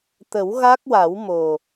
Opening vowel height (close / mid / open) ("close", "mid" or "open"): mid